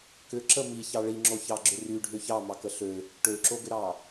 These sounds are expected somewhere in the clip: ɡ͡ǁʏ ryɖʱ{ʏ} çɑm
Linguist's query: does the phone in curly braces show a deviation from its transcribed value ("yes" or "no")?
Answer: no